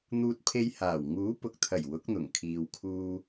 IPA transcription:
n̪ uː˧ t̚ pʰ e˧ j h aː˨˩ w ŋ uː˨˥ p ʊ˨ k̚ t̪ʰ ɐ˨˩ j w ʊ˨˥ k̚ n̪ ʊ˨˩ ŋ kʰ iː˨ w kʰ uː˧

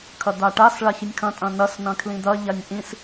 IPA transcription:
kʰ ɐ d̪ a ʈ a s ɭ a ç i nʲ kʰ ɐ̃ tʼ ɐ̃ n ɐ s n ɐ̃ kʰ l ĩ d̪ ɐ ʎ a nʲ ʔ ĩ s

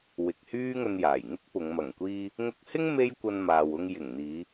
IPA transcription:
w ɪ˨ k̚ h yː˥ ŋ ɵ˧ n j aː˨˩ j ŋ ɪ˥ k̚ p ʊ˨˧ ŋ m ɐ˨˩ ŋ kʷ iː˧ | ŋ ʊ˧ k̚ h ɪ˥ ŋ m e˥ j kʷ ɐ˧ n m aː˨ w ʊ˧ ŋ j ɪ˨˩ ŋ n̪ iː˨˧

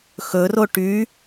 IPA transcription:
x ɵ r o ʈ y

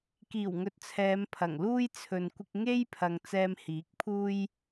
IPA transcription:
k iː˨˩ w ŋ ɵ˨ t̚ t͡sʰ ɛː˨˧ m pʰ ɐ˨˩ ŋ l uː˧ j t͡sʰ ɵ˨ n kʷ ɪ˧ k̚ ŋ e˥ j pʰ ɐ˨ ŋ t͡s ɛː˧ m h iː˨˥ k̚ pʰ uː˥ j

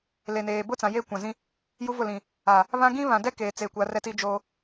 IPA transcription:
l e˨ n eː˨ b ʊ˦ t͡s ã˨ j e˦˨ kʷ ã˨ z ĩ˦ | j u˦ v ʊ˦˨ l ĩ˨ | a˨ | β ã˦ ɡ ĩ˦ β ã˨ d ɛ˦ k eː˨ t͡s e˨ kʷ a˨˦ r ɛ˦ t i˦ d͡ʒ oː˦

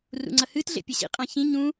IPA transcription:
r ṵ ŋ͡ǀ ɐ h ɨ t ɮ ḛ pʲ ɐ ɕ ḭ qʼ ã ç ĩ ɲ ũ

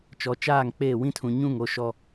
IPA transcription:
t͡ʃ ɔ˨ t͡ʃ aː˦˨ ŋ k͡p eː˦˨ w ĩ˦ tʰ ũ˨ ɲ ũ˦˨ ŋ o˦ ʃ ɔ˦

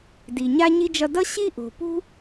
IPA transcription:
d i˨ ɲ a˥ ɲ i˥ d͡ʒ ʌ˦ d ʌ˥ ɕ i˥ ʔ o̤˨ p ṳ˥

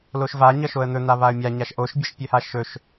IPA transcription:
l o ʃ v a ɲ ʌ ʃ o ə̯ n̪ ɵ n̪ a β a ə̯ mʲ a ɲ a ʃ ʔ o ʃ bʲ ʌ ʃ pʲ ɵ h a ʃ ɵ ʃ

